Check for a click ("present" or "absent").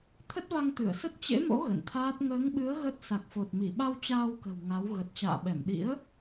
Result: absent